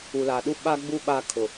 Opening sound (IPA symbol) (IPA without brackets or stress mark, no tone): u